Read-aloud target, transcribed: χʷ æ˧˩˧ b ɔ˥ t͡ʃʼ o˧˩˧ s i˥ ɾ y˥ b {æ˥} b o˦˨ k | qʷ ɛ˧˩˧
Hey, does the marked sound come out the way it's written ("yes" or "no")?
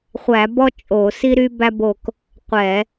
yes